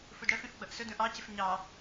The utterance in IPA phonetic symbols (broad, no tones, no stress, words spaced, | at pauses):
fudɽɜfĩf ɡ͡bʌʔsʊd ũʔɑcɪf ɲɑ